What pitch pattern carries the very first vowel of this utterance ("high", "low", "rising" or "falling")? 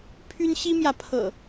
high